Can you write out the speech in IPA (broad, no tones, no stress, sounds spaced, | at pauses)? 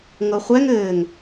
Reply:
ŋ ɤ χʷ ɛ ŋ ɘː ŋ